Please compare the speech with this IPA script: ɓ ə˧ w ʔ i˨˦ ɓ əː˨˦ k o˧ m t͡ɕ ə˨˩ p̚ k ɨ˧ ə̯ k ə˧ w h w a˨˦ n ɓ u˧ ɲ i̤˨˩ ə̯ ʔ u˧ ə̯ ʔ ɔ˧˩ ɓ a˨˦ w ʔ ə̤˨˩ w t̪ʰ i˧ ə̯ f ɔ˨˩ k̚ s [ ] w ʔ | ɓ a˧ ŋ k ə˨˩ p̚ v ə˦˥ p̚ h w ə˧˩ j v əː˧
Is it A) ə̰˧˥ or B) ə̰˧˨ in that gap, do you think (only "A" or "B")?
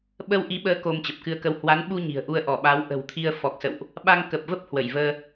B